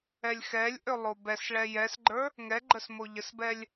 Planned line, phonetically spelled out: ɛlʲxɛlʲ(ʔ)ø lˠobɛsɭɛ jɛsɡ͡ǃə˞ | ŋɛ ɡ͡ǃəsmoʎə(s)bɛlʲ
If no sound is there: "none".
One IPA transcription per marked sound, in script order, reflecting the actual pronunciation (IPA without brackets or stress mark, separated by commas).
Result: ʔ, s